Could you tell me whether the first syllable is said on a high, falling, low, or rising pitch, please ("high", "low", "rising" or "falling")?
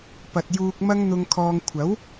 low